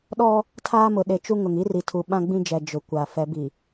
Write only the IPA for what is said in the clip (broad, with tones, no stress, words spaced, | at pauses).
ɗɔ˦ | tʰaː˦mʊ˨ ɗe˨ t͡ʃu˦ŋʊ˨ŋ i˦ri˨tʰu˨ ɓã˦ɡ͡bĩ˦d͡ʒɛ˨ d͡ʒʊ˨kʷa˨ fɛ˨˦bi˨